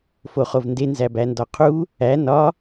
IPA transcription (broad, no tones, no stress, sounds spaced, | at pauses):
f o χ o v n d e n z æ b æ n d ɒ qʰ u | æ n ɒ